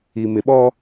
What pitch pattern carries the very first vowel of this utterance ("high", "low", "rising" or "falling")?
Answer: low